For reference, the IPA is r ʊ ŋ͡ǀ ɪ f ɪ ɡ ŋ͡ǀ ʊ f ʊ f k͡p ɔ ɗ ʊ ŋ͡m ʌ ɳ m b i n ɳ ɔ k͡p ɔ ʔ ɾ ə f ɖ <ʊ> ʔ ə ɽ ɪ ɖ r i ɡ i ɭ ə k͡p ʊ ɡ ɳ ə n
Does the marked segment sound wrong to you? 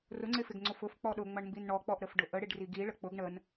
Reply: no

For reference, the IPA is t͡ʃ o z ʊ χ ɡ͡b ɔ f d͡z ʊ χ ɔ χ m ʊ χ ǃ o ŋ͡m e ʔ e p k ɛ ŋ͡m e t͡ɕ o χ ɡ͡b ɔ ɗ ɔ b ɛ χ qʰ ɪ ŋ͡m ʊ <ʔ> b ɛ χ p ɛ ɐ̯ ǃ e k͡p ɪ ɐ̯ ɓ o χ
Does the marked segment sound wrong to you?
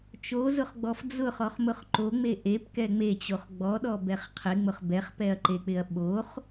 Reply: yes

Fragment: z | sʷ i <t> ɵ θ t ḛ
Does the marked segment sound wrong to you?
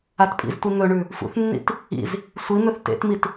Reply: yes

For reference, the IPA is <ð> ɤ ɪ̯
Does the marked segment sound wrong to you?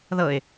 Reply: no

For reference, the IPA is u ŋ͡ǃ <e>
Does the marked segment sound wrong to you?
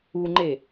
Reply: no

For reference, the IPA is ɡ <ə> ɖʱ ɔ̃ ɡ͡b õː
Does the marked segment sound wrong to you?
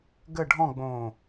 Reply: no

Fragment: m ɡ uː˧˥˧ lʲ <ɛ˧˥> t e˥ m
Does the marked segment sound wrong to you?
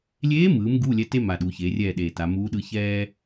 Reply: no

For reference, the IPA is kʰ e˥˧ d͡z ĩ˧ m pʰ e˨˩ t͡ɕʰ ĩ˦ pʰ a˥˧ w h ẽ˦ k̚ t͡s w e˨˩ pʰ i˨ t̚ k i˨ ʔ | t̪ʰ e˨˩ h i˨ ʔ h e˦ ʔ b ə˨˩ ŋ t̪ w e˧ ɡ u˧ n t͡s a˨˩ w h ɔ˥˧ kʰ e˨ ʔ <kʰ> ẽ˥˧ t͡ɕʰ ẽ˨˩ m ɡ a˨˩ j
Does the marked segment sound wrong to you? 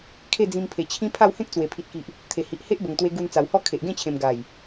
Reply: yes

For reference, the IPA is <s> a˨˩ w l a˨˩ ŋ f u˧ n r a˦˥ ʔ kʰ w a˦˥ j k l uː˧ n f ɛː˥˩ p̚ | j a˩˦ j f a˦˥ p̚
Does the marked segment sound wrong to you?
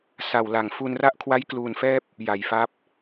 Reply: no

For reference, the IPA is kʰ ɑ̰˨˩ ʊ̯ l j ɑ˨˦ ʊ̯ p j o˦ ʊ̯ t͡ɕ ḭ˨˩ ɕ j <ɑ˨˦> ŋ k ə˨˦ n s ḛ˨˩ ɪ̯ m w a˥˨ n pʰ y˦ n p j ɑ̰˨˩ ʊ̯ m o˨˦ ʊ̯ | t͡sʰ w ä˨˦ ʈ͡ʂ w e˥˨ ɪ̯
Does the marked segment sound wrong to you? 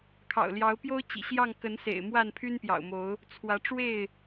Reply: yes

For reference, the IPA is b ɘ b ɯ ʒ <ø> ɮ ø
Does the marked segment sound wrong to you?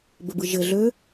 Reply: yes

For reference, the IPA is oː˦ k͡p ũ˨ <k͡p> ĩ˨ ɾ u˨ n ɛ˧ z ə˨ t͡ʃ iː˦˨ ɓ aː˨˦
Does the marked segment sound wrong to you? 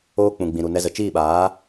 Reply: yes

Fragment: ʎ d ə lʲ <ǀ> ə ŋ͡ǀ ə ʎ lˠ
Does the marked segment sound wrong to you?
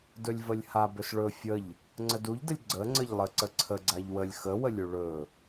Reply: yes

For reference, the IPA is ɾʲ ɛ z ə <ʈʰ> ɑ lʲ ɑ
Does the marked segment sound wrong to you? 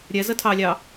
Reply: yes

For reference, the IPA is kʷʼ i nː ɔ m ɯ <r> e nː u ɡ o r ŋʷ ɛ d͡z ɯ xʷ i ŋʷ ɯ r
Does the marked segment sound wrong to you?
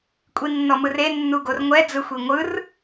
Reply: no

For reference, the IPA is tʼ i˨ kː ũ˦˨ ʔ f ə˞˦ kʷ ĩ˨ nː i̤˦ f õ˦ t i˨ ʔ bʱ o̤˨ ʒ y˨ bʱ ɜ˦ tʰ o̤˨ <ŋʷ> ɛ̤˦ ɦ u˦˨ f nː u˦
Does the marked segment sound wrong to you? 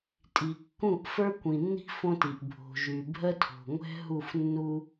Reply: no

